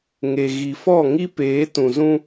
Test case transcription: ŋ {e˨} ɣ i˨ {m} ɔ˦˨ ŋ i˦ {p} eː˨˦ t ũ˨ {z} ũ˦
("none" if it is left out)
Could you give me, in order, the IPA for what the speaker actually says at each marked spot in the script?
e˨, f, p, z

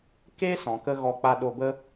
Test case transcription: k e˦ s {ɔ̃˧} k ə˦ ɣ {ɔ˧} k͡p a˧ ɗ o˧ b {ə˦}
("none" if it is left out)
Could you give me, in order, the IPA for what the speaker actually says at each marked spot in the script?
ɔ̃˨, ɔ˧, ə˦

